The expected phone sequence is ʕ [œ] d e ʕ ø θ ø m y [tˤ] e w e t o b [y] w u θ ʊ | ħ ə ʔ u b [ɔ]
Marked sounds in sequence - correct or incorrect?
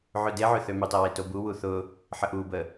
incorrect, correct, incorrect, incorrect

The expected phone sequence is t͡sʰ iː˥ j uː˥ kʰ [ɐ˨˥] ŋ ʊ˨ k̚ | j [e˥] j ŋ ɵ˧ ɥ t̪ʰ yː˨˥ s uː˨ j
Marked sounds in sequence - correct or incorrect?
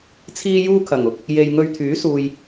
incorrect, incorrect

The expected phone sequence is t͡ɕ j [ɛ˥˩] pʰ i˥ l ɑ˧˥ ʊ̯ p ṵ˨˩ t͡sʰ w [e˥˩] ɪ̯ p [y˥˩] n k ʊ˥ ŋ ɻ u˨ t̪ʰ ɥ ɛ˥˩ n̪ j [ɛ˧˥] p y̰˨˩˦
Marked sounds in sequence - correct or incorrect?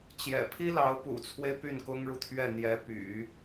incorrect, incorrect, correct, correct

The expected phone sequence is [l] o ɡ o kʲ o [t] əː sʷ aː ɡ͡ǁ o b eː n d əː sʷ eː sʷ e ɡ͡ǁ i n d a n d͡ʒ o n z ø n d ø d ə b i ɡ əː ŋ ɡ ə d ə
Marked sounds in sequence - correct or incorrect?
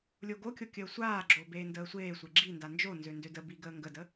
incorrect, incorrect

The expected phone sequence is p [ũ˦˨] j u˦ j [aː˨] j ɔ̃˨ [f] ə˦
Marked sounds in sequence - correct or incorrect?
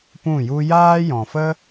correct, incorrect, correct

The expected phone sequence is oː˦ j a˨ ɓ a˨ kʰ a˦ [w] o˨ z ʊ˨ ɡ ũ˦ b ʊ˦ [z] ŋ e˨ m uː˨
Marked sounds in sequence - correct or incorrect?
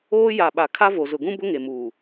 incorrect, incorrect

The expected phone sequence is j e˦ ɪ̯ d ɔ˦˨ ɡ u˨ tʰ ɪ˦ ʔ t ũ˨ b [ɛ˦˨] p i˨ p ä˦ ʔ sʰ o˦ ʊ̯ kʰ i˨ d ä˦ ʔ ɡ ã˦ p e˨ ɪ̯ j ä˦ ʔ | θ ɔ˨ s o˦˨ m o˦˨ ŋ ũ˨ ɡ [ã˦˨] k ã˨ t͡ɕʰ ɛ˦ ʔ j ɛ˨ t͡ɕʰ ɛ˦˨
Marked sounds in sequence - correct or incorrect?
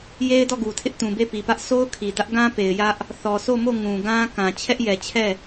incorrect, incorrect

